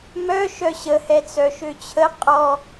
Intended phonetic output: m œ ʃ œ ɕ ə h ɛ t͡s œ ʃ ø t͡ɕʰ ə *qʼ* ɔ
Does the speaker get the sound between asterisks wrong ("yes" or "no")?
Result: no